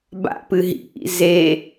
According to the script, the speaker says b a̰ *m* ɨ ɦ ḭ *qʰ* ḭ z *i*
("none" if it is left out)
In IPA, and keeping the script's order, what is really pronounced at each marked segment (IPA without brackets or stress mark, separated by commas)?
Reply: p, ʔ, e